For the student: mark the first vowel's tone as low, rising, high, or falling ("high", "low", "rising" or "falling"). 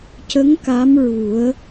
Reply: rising